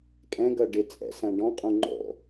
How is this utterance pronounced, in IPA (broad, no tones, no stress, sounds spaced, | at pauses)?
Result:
kʼ ɛ̃ ɡ ʌ ɖ ɪ t͡sʼ ɛ̰ s æ̃ ɖ ɔ̃ qʼ ũ ŋ͡ǃ ɔ̰